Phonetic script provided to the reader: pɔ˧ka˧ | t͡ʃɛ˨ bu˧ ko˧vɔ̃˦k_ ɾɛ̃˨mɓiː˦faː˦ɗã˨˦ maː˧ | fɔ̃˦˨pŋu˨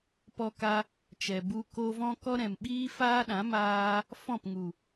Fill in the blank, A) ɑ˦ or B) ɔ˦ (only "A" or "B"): B